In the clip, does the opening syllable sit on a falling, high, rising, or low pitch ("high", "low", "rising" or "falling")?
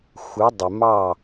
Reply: rising